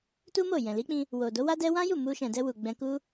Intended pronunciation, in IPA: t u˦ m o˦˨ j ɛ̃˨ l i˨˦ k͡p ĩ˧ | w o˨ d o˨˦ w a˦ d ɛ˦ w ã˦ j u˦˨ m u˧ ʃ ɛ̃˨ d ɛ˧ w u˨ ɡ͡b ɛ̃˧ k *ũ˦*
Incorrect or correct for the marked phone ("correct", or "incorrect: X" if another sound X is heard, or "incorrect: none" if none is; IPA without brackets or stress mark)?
incorrect: u˦